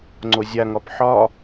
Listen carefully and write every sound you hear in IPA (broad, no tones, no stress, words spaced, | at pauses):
ŋ͡ǀozʲaŋɒp ħɒ